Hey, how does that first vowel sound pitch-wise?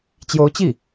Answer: rising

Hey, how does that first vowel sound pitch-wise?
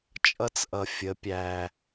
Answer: high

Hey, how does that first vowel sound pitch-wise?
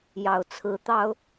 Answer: low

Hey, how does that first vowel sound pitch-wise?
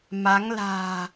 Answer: rising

